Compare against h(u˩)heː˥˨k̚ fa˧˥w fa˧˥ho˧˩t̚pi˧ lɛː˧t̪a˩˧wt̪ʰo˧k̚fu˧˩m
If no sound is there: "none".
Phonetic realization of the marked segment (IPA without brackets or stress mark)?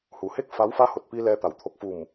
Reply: u˩